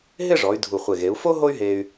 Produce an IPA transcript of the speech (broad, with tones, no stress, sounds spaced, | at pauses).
ɦ ɪ˥˧ ʐ ɔ˩˧ y̯ dʱ u˧˩ χʷ e˧˩ ɣ e˩˧ u̯ f o˥ ɦ o˥ y̯ ɦ e˧ y̯